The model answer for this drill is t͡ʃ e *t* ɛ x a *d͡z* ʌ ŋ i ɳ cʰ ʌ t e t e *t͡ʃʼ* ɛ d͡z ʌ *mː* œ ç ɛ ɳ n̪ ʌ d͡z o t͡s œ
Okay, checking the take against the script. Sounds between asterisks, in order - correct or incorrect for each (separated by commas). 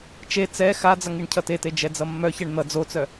incorrect, correct, incorrect, correct